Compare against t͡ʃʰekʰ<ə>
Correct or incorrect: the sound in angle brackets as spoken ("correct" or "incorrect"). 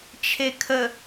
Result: correct